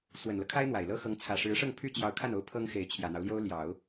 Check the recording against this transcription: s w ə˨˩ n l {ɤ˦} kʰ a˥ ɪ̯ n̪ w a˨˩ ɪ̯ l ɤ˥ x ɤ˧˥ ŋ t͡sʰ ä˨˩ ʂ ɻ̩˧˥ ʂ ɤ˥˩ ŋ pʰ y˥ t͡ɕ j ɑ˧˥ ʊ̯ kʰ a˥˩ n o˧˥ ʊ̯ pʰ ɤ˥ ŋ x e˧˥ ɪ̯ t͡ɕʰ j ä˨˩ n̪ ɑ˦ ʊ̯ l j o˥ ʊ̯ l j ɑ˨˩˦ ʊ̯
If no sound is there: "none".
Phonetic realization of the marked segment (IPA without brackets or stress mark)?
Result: ɤ˦